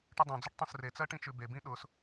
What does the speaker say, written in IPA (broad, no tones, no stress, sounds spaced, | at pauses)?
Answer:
ʈ ʊ dˤ õ d͡z ʊ ʈ tˤ õ s r e t͡s ɜ ʈ ĩ t͡ʃ ʉ b e b ĩ ɗ ʊ s